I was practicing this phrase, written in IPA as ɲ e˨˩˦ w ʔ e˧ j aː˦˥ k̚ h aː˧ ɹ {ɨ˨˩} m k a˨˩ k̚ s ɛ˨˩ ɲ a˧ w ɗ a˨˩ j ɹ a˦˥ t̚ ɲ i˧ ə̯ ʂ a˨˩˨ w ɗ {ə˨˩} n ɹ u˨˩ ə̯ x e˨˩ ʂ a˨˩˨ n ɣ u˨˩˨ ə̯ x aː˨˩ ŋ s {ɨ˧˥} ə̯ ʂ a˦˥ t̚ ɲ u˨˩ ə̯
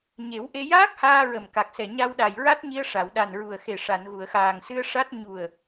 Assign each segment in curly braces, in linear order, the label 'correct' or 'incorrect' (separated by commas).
incorrect, incorrect, incorrect